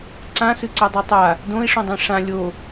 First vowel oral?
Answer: no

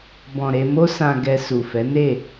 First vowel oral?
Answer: no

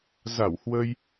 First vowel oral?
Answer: yes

